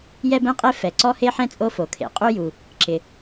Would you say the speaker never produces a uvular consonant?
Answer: no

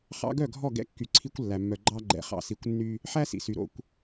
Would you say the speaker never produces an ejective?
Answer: yes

